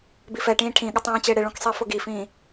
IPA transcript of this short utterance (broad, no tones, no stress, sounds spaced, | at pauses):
b i f ɛ ʈ ĩː ʈʰ ĩ ɠ ɪ tˤ ĩː t͡ɕ ɪː ɽ ɪ ɭ ũ k sˤ i f ʊ ɡ i f ĩː